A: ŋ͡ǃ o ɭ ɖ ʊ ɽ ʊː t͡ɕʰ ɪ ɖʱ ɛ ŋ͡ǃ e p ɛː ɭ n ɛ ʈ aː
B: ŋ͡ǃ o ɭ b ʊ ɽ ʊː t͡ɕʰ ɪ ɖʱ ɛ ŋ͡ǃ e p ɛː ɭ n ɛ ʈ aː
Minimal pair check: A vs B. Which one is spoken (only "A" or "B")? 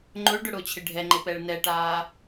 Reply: A